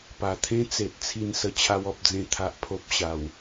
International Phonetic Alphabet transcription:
p a˨˩ t̪ʰ ẽ˦ t͡s e˨ t̚ t͡sʰ i˧ n s ə˧ t͡ɕʰ a˧ w ɔ˨ p̚ d͡z ẽ˧ t̪ʰ a˨ ʔ pʰ o˦ p̚ ɕ a˨˩ w

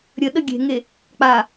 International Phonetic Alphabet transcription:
ɾʲ ə ɗ ə ɡʲ e̤ ŋ e | k͡p a

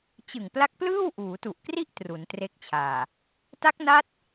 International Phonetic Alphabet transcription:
t͡ɕ ɯ˨˩ ŋ p l a˦˥ k̚ p l ɯː˥˩ w ʔ uː˩˦ t u˨˩ ʔ k r i˥˩ ʔ t r u˩˦ n t r e˦˥ k̚ t͡ɕʰ aː˨˩ | t a˦˥ k̚ n a˦˥ t̚

